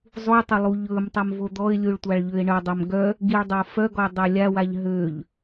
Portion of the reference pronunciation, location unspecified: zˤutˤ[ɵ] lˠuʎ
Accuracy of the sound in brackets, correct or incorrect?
correct